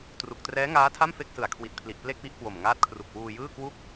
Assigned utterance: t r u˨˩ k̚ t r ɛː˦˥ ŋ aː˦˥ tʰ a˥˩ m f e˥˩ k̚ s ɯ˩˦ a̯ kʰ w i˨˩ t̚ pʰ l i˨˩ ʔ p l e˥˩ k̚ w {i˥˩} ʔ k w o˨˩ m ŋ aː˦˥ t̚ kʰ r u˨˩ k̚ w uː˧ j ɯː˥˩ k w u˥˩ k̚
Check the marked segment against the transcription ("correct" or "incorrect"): correct